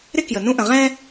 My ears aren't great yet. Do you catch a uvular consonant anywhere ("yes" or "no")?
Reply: yes